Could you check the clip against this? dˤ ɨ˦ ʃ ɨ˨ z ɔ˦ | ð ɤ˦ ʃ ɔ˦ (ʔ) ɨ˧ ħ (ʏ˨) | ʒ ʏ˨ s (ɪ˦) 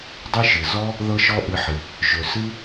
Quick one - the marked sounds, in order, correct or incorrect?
correct, incorrect: ɨ˨, incorrect: ɨ˦

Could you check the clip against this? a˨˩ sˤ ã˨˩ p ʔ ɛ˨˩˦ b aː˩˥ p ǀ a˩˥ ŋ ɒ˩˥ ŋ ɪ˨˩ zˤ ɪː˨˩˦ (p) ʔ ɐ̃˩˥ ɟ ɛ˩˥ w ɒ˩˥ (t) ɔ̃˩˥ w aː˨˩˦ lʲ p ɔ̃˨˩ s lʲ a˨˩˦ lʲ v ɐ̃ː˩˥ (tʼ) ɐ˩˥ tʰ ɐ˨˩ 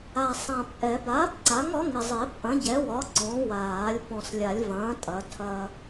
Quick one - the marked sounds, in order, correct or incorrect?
correct, incorrect: ǀ, correct

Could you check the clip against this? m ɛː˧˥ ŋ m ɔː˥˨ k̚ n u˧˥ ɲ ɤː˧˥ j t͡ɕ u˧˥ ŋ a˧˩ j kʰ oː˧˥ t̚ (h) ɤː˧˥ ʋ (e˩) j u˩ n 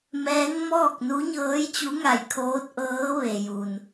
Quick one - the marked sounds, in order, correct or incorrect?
incorrect: ʔ, correct

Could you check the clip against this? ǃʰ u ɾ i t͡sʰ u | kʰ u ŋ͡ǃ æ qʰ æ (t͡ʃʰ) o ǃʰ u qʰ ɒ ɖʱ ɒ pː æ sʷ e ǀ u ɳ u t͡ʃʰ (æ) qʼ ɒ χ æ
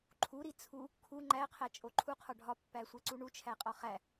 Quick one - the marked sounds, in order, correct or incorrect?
incorrect: t͡ʃʼ, correct

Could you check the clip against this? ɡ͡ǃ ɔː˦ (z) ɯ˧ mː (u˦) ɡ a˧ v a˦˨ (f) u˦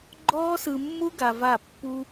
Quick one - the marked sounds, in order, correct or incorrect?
incorrect: s, correct, incorrect: pː

